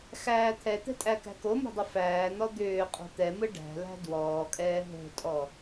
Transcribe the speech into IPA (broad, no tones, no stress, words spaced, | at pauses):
xæːt̪ʰɛt̪ɛ̤ tʼækæ̤komo̤ dˤəfæːn̪ɔ d̪ʏː qʼo̤t̪ɛmɯ ɖæ̤læ̤ dwɔːkʼɛː ɦo̤tʼɔ